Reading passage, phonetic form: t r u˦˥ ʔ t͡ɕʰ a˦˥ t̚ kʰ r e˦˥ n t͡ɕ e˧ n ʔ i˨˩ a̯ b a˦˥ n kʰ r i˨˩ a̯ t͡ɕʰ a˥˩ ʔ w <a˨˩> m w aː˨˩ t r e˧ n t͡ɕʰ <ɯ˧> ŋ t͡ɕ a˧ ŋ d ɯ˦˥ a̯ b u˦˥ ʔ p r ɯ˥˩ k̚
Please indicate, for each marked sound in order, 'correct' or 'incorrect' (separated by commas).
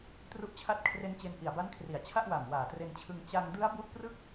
correct, correct